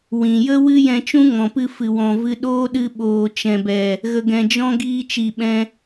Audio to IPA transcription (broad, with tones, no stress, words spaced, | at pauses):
wĩ˨jə˦wɨ˦ jɛ̃˧t͡ʃũ˦ŋɔ̃˨pɨ˧ fɨ˨wɔ̃˨vɨ˧ ɗoː˦ɗɨ˧ɓoː˨ t͡ʃɛ̃˨bɛ˨ | ɣə˧ɡɛ̃˧d͡ʒɔ̃˦ ɡiː˧t͡ʃi˨ɓɛ̃˧